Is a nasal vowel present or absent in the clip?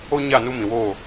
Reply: present